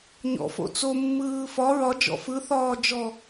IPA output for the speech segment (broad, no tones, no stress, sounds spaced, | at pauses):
ɲ ɔ̰ f o̰ t͡s o mː ɯː f ɒ ɹ ɒ d͡ʒ ɔ̰ f ɯ θ ɒː d͡ʒ ɔ